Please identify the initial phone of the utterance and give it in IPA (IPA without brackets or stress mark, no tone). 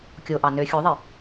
kʲ